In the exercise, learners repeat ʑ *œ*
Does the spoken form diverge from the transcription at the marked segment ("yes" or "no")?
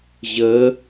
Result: yes